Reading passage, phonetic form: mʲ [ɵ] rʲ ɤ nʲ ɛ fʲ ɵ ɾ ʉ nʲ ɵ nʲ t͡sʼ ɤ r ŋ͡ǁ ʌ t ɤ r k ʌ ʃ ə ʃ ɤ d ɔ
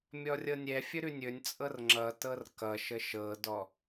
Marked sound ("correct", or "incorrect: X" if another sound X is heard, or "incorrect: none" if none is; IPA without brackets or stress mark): incorrect: ɔ